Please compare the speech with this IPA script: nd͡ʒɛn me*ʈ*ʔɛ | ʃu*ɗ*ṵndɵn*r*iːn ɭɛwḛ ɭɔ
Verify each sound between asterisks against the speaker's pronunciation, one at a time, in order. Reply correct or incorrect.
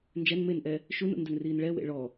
incorrect: n, incorrect: n, correct

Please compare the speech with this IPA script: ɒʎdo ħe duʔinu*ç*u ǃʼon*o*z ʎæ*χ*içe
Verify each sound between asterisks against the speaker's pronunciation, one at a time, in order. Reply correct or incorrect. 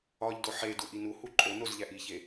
incorrect: h, correct, incorrect: ʔ

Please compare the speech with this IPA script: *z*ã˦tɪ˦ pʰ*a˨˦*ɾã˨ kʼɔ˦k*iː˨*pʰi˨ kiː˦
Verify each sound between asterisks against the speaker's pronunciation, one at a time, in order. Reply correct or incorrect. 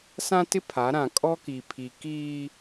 incorrect: s, correct, incorrect: i˨

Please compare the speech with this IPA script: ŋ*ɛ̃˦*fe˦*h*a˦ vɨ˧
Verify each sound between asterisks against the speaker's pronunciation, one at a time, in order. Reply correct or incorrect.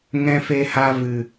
correct, correct

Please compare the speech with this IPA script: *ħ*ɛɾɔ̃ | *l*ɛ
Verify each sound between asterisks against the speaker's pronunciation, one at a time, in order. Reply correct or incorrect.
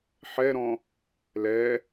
correct, correct

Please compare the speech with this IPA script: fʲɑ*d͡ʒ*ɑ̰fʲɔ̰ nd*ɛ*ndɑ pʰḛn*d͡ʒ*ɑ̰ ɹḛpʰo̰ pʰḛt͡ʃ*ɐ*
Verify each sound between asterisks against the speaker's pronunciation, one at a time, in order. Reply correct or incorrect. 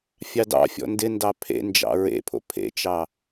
incorrect: d, incorrect: ɪ, correct, incorrect: ɑ

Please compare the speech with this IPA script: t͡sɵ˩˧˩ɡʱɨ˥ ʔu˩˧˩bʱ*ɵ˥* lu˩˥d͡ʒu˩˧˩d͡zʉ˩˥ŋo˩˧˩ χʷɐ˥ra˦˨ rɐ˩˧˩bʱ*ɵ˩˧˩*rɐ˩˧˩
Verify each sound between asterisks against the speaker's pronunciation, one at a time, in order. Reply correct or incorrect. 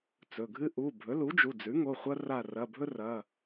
incorrect: ɵ˩˥, incorrect: ɵ˥

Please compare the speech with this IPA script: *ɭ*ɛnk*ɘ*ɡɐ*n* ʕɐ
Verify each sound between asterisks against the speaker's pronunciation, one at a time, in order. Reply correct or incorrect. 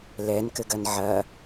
incorrect: l, correct, correct

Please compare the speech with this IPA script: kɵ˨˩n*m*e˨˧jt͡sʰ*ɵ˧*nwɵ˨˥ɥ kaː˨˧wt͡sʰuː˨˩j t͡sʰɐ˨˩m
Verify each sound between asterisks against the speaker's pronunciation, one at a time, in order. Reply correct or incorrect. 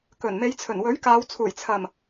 correct, incorrect: ɵ˨˩

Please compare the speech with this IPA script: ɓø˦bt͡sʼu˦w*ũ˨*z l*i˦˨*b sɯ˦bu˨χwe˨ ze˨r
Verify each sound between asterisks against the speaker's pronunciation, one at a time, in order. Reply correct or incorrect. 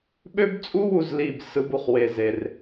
incorrect: u˨, correct

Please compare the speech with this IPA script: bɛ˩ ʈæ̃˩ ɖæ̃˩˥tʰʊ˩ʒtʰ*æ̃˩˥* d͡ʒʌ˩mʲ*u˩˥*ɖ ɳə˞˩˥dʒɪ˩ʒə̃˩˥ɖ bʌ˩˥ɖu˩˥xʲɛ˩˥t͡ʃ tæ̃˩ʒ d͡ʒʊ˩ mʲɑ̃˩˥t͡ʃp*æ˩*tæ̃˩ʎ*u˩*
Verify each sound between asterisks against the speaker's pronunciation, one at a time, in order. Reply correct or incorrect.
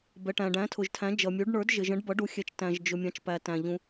correct, correct, correct, incorrect: ũ˩

